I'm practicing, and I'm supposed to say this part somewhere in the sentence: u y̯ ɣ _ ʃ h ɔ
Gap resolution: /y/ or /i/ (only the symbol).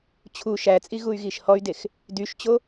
i